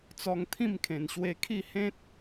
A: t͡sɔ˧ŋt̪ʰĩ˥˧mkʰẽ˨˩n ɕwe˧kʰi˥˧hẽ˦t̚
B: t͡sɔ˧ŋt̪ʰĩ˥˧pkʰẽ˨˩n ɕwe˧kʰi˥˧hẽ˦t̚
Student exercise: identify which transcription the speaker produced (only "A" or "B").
A